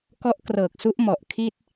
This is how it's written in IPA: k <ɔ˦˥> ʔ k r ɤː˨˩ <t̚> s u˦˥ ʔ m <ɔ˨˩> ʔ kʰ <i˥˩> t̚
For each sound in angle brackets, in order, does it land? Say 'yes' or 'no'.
yes, no, yes, yes

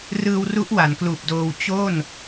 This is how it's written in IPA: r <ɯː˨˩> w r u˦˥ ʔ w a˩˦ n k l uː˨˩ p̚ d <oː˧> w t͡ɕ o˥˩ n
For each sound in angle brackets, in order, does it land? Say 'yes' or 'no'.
no, yes

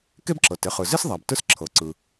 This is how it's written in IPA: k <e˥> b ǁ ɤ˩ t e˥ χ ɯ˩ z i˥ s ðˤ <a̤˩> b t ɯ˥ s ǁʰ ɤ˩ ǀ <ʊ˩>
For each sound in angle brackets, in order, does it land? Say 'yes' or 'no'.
yes, no, no

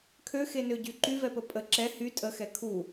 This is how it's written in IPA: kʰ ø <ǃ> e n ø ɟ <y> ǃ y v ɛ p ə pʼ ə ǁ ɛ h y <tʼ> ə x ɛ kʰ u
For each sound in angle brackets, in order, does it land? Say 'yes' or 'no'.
no, yes, yes

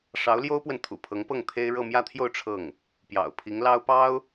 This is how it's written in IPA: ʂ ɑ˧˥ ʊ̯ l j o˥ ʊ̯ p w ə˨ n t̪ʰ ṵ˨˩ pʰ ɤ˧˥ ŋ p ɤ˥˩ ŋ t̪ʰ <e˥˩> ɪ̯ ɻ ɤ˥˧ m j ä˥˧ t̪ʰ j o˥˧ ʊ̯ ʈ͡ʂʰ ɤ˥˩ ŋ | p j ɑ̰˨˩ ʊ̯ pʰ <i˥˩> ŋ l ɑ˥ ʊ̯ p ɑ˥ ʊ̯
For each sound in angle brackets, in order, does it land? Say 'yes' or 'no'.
no, no

